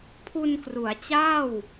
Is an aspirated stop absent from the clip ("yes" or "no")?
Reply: no